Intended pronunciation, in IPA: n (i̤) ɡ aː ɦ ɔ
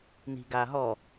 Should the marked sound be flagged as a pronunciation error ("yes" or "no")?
no